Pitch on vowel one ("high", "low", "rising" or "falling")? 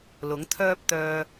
rising